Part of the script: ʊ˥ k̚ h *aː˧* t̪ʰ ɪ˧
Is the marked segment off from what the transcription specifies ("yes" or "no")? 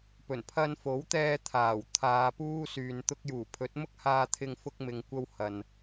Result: no